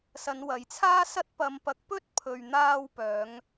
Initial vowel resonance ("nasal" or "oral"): oral